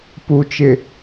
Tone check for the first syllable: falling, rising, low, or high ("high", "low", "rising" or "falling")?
low